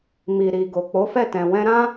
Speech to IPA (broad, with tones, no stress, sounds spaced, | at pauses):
m i˨ ɾ i˨ ɡ o˨ k͡p o˨˦ f ɛ˦˨ t ɛ̃˨ w ɛ̃˧ ɾ ã˦